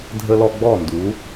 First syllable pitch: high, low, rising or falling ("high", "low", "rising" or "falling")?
high